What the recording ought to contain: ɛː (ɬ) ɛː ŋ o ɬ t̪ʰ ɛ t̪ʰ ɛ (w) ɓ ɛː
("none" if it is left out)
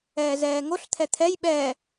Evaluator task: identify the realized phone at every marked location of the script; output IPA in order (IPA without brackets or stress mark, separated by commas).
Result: z, j